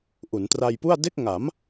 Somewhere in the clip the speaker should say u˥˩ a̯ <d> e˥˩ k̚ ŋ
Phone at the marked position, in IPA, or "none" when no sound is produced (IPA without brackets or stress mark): d